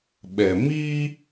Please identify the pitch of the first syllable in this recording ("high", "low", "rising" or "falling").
low